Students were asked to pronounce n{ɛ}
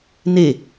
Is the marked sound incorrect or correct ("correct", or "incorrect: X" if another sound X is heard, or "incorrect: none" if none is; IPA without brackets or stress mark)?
incorrect: e